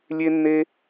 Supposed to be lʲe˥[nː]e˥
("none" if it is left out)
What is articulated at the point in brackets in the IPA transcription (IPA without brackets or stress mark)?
nː